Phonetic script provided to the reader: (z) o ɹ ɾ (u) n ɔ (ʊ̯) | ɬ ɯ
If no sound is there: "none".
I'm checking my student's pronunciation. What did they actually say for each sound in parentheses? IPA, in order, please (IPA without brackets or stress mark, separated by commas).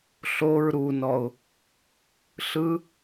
ɬ, u, ʊ̯